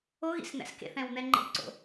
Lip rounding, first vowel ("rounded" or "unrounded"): rounded